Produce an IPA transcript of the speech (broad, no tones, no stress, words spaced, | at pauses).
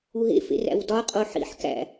uɦḛ fḛræ̰wdɒ qʼoħḭħ kæ̰